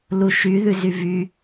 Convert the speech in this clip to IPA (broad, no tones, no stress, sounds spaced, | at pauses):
l u ʃ y ð ʉ z y v y